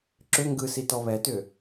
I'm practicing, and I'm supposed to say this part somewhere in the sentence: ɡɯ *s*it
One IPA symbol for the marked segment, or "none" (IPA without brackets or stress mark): s